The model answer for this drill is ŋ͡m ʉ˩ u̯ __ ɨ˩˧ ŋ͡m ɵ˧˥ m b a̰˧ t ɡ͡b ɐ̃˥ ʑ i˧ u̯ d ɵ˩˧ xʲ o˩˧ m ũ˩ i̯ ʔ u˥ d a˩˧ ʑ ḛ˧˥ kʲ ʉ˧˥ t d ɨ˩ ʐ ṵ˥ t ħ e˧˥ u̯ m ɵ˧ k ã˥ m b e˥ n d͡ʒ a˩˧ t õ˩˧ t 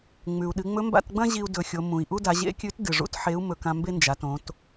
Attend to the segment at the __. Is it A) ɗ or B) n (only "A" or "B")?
A